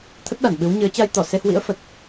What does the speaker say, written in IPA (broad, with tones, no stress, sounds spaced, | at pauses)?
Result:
t̪ʰ ə˦˥ t̚ ɗ a˧˩ n ɓ ɨ˨˦ w ɲ ɨ˨˦ ə̯ t͡ɕ a˧ j t̪ ɔ˧˩ s e˧ h w ḭ˧˥ ə̯ f ə˨˩ t̚